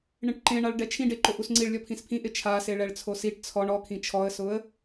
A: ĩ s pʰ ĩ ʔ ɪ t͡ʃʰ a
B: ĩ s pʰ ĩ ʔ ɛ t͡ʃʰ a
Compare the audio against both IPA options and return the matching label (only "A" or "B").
A